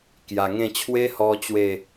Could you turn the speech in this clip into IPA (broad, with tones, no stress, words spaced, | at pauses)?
kja˨˩ŋẽ˥˧ t͡ɕʰwe˦hɔ˧ t͡ɕwe˥˧